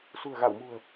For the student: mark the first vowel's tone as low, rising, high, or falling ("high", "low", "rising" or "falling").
low